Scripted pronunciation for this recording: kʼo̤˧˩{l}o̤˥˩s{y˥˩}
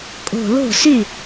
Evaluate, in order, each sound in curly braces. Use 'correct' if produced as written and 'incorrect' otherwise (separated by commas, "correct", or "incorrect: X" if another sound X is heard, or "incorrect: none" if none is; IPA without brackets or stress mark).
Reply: correct, correct